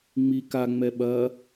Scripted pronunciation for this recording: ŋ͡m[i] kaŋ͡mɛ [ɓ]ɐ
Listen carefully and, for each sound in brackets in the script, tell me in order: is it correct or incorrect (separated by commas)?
correct, correct